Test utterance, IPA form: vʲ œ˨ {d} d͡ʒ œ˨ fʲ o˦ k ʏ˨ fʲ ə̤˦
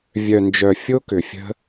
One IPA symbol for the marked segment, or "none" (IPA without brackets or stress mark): n